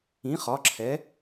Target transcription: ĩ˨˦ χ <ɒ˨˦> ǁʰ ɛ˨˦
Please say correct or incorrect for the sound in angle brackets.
correct